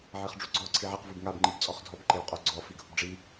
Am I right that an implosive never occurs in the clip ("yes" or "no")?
yes